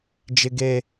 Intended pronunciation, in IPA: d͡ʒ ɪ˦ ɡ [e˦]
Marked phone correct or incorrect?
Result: correct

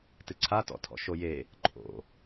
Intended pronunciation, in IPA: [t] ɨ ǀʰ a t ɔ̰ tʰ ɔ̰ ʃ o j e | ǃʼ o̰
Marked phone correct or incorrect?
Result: correct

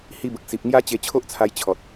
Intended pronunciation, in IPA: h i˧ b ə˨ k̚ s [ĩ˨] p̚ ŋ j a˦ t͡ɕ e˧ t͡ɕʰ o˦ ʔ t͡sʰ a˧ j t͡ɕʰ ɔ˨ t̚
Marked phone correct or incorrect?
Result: incorrect: i˨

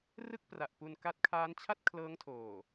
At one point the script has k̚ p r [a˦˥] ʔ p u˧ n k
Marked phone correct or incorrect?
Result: incorrect: a˨˩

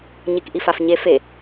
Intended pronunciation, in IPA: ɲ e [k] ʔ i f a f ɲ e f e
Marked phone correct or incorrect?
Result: correct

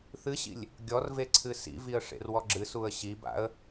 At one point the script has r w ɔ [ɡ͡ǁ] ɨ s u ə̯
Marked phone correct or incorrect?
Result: correct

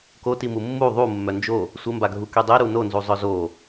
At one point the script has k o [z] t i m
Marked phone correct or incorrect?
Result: incorrect: none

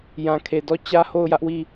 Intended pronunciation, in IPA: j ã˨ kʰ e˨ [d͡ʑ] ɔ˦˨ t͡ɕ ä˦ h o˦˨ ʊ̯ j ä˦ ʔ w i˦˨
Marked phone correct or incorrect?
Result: incorrect: d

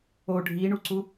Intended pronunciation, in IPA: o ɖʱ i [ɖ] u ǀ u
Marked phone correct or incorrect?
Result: incorrect: ɳ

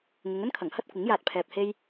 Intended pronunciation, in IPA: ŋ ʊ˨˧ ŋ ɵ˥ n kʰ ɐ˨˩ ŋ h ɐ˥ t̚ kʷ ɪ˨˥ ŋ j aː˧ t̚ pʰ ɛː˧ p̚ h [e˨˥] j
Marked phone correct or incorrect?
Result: incorrect: e˥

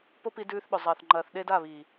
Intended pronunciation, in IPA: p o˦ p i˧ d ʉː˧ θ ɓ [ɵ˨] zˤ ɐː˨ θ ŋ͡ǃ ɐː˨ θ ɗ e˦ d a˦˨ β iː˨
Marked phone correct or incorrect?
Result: correct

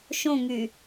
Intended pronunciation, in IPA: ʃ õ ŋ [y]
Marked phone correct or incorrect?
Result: correct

